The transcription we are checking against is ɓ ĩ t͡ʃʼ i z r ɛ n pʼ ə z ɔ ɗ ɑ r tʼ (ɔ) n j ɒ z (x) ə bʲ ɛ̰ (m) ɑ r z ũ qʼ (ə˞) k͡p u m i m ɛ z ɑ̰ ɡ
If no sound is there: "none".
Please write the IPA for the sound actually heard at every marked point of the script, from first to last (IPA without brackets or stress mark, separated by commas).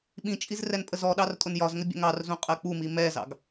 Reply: ʊ, ŋ, ŋ, ɜ